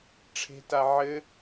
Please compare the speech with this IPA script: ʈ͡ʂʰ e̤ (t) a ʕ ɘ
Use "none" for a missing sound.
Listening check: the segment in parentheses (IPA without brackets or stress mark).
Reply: t